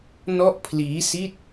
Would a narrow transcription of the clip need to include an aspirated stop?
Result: yes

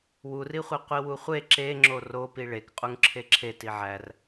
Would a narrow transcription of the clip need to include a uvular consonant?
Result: yes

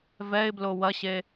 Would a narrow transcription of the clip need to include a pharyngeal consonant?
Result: no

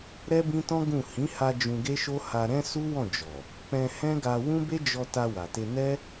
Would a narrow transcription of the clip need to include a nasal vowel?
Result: yes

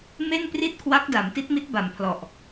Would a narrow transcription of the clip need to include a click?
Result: no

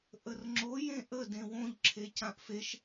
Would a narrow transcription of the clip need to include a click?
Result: yes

